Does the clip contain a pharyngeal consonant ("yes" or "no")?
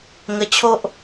no